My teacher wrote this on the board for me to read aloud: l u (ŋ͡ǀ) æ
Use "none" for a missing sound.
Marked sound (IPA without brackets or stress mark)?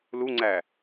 ŋ͡ǀ